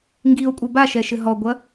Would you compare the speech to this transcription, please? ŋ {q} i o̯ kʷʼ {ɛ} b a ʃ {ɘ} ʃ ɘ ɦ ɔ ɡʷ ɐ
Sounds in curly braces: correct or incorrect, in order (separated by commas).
incorrect, incorrect, incorrect